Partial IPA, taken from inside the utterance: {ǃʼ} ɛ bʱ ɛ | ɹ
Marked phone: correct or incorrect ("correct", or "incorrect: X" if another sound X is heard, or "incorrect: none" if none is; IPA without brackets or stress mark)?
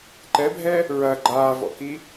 incorrect: ǃ